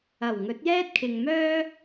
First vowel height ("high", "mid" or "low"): low